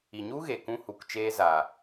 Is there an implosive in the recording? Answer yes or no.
no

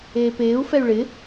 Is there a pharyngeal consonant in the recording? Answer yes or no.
no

